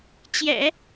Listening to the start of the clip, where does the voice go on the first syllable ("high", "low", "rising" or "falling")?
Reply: low